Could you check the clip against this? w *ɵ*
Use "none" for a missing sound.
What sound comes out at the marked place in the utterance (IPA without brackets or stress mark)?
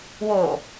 o